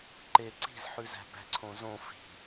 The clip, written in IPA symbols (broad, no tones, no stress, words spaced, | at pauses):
ǃe ǀi̤zħʉzæ̤ bæ̤ǀʰõzõ fi̤